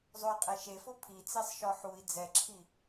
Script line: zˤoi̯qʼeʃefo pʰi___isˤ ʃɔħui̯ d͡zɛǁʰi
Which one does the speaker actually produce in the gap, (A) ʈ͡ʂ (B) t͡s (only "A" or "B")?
B